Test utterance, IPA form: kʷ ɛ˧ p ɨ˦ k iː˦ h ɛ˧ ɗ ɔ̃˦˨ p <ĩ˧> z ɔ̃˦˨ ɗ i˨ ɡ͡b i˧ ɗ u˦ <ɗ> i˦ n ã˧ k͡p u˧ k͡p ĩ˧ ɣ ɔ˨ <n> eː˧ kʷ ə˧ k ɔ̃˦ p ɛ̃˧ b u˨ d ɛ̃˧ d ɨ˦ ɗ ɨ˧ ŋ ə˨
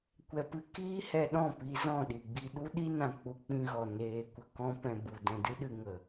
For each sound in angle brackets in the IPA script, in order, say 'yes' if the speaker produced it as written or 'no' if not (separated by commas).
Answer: no, yes, yes